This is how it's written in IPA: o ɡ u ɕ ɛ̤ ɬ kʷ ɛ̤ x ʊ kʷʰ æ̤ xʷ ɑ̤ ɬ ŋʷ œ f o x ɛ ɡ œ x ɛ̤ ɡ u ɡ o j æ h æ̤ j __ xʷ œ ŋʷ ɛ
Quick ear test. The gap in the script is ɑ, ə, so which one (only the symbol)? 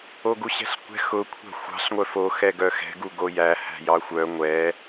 ɑ